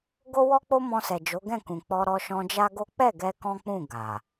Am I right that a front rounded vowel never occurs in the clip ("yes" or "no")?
yes